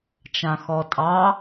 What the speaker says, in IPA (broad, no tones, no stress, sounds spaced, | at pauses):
t͡ʃ ã x ɔ tʼ ɑ